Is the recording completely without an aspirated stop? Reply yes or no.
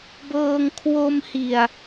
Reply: no